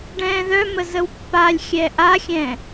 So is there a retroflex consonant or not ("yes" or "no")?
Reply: yes